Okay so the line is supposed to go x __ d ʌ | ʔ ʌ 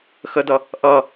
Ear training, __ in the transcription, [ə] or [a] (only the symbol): ə